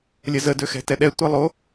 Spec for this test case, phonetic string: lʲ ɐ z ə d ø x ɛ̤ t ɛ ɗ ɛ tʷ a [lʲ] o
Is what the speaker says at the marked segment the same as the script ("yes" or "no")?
no